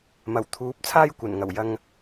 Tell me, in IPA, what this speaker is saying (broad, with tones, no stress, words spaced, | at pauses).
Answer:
mɐ˨˩wt̪ʰuː˨˥p̚ t͡sʰaː˥jkʷɐ˨˩nŋɐ˨˩w jɐ˧ŋ